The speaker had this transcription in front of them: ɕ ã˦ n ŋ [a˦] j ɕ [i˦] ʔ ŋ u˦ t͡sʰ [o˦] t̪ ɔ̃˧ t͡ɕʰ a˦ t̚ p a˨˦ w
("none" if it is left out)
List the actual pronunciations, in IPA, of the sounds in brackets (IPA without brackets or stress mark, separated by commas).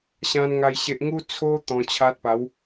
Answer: a˦, e˦, o˦